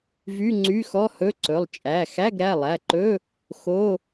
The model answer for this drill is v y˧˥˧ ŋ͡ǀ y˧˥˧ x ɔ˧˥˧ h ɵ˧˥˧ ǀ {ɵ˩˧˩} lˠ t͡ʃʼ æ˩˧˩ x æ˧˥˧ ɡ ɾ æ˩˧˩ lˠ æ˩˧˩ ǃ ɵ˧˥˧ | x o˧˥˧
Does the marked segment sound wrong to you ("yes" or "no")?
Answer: no